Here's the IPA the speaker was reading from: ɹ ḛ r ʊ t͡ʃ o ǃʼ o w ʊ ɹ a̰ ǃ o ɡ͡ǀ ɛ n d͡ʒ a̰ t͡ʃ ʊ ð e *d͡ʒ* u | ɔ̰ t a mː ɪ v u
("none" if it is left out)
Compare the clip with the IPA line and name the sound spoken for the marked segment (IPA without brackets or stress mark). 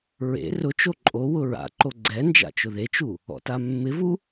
t͡ʃ